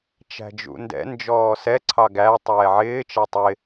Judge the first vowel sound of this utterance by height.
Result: low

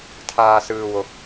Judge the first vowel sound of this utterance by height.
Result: low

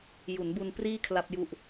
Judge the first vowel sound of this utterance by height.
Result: high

